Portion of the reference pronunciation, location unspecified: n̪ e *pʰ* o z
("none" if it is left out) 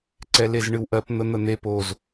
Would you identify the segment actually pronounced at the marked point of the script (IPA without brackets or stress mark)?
p